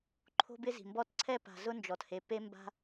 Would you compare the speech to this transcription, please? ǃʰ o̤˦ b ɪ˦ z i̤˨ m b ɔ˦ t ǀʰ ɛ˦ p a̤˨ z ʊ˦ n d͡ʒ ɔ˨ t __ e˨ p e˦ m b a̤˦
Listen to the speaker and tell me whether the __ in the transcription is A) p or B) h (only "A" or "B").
B